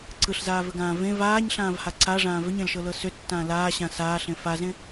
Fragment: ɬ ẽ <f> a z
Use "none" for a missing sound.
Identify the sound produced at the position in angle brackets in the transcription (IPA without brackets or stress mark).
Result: f